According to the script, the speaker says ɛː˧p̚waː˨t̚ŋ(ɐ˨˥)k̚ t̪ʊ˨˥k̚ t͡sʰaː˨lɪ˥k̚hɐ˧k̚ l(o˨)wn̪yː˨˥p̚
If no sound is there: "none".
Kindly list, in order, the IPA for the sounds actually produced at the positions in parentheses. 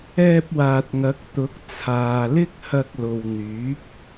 ɐ˨˥, o˨

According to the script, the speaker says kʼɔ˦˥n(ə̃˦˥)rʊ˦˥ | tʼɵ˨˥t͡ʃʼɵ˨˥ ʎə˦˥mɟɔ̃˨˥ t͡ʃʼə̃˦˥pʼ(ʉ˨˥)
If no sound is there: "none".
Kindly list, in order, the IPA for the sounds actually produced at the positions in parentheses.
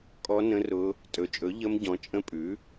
ə̃˦˥, ʉ˨˥

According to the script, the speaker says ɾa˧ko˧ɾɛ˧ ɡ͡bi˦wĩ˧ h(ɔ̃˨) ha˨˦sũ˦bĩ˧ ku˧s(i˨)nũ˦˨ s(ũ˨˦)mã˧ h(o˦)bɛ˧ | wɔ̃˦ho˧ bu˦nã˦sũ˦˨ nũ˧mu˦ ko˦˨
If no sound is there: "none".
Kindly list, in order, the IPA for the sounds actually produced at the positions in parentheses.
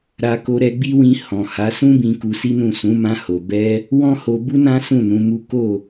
ɔ̃˨, i˦, ũ˨˦, o˨

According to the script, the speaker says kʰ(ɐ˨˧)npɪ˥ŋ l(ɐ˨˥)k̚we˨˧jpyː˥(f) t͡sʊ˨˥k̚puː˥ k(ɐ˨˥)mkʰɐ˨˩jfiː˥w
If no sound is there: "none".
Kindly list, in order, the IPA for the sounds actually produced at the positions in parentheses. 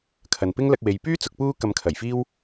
ɐ˨, ɐ˧, none, ɐ˧

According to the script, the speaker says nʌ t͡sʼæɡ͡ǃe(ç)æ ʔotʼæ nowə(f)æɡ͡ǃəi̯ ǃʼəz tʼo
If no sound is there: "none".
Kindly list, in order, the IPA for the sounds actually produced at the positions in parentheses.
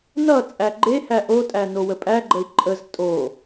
h, pʼ

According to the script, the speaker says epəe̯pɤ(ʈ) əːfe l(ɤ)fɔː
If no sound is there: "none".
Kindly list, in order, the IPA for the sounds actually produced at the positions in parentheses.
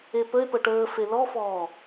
ʈ, ɔ

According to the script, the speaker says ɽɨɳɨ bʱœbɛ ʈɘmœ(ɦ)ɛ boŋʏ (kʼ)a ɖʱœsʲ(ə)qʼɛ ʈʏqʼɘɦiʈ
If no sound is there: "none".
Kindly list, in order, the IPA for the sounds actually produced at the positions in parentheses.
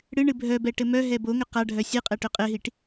ɦ, q, ɨ

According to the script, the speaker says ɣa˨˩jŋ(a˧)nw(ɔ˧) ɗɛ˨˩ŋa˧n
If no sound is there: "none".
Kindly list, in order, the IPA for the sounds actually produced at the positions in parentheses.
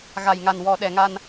a˨˩, ɔ˨˩

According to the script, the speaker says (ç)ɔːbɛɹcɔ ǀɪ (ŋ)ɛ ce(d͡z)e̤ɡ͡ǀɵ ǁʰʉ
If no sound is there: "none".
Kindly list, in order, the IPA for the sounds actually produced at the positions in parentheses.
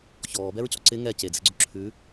ç, ŋ, d͡z

